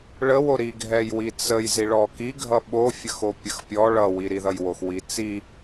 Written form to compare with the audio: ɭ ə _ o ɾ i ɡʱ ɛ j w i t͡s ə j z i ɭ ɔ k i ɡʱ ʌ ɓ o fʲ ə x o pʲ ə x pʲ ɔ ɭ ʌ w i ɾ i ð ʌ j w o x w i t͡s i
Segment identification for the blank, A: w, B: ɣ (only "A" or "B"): A